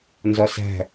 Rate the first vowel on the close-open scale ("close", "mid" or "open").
open